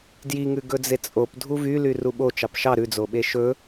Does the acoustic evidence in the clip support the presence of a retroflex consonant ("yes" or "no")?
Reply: no